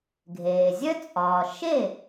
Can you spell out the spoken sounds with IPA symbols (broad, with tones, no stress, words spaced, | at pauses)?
ɡʱeː˩zʲœ˥t͡sʼɒː˩ ʃe˥˩